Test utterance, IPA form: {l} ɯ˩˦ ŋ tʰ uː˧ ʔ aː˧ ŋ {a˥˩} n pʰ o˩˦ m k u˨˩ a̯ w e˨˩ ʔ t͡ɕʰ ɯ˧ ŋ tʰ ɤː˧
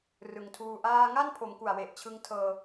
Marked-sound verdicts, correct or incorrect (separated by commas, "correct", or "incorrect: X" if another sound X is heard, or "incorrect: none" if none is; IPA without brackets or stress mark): incorrect: r, correct